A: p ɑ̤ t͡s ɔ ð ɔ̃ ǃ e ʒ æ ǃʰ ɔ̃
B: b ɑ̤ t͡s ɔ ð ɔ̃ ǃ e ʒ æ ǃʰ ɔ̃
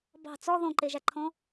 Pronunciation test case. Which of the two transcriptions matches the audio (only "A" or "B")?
B